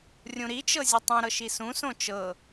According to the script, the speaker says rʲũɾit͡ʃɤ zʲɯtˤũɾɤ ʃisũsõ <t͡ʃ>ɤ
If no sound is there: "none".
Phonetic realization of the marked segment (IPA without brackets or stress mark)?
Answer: t͡ʃ